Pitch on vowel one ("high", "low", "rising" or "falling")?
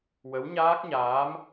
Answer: rising